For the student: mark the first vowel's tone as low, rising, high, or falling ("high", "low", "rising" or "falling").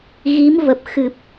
rising